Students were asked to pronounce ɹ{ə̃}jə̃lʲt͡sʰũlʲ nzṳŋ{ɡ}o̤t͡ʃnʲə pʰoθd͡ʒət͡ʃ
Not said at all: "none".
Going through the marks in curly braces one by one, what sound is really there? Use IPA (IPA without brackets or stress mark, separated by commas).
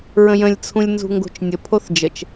ə̃, ɡ